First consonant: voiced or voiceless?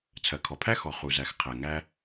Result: voiceless